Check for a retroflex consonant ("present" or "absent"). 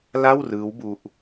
absent